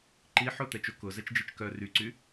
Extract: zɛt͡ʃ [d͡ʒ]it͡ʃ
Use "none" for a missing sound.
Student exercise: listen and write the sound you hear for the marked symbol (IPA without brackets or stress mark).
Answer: d͡ʒ